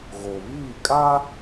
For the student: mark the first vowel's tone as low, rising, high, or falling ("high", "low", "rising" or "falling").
low